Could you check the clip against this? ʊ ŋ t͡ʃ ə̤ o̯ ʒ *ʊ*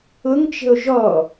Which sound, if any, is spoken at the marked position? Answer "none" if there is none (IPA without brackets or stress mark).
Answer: ɔ